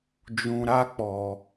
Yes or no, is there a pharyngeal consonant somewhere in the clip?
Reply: no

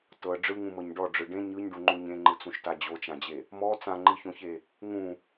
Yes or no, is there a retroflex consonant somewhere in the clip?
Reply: yes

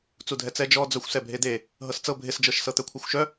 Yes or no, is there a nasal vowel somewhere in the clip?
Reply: no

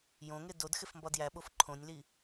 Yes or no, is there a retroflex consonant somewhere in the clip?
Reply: no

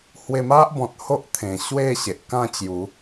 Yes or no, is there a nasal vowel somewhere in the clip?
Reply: yes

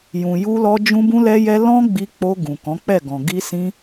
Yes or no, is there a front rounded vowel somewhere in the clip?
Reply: no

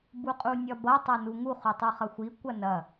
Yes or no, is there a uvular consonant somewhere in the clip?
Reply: yes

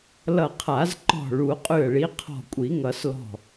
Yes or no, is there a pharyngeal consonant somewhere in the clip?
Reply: no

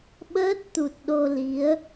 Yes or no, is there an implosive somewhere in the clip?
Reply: yes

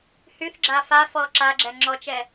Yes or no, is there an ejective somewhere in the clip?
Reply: no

